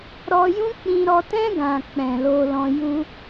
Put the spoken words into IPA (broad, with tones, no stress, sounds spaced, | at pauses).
ɾ ɔ˧ j ũ˦ k͡p ĩ˧ ɾ ɔ˧ t ɛ̃˦ ɡ ã˧ k͡p ɛ̃˨ l o˧ l ɔ̃˧ j u˦